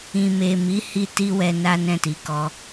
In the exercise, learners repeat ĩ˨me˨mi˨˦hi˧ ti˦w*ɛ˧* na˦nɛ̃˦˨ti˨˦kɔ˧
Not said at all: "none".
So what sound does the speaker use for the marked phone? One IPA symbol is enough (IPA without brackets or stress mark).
ɛ˧